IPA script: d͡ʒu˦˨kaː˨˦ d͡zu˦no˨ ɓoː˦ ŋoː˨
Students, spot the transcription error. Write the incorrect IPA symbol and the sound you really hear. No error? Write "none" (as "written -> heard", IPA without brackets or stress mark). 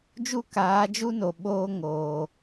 d͡z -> d͡ʒ